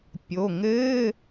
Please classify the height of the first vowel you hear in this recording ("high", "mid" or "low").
mid